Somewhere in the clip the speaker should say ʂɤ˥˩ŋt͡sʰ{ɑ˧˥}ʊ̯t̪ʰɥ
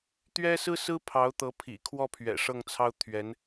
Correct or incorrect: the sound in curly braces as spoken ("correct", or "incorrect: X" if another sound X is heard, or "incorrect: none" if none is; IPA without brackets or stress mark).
incorrect: ɑ˥